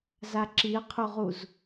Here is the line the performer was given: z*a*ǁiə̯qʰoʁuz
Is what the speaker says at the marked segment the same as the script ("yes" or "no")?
yes